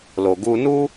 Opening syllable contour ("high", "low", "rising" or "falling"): low